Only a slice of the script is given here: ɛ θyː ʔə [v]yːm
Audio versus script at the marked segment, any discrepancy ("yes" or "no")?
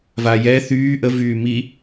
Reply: no